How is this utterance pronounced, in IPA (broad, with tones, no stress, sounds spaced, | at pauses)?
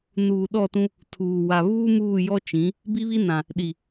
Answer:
n uː˨ ɗ ɔ˦˨ t ũ˦ | tʰ uː˨ w a˨ β uː˦ m uː˦˨ j ɔ˦ t͡ʃ ĩ˨˦ | b i˦ β i˦ n ã˨ | ɗ i˨